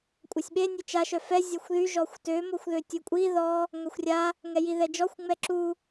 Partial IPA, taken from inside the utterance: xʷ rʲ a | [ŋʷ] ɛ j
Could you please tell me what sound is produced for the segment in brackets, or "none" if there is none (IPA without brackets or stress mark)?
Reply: ŋ